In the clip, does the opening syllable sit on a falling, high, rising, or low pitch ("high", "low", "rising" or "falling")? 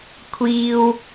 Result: high